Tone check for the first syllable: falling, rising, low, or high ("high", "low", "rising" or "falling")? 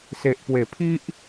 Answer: low